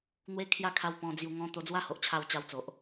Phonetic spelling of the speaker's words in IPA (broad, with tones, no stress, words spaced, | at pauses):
n̪we˦ kʰja˦ kʰa˧w pɔ̃˧d͡zju˧ŋɔ̃˦ t̪o˧d͡zwa˦ho˨ʔt͡ɕʰa˧w t͡ɕa˧wt͡so˨ʔ